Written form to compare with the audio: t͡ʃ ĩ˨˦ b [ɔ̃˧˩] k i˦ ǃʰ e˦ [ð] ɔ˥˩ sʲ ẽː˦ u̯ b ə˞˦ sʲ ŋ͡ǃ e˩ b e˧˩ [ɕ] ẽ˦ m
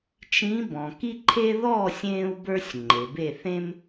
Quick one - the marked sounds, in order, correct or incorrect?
incorrect: ɔ̃˩, correct, incorrect: θ

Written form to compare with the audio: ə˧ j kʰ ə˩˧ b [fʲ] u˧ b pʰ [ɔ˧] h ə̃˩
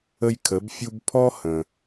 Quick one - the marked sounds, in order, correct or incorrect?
correct, correct

